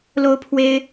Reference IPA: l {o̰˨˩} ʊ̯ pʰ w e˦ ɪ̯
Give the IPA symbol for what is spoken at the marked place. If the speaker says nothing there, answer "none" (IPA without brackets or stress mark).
o˦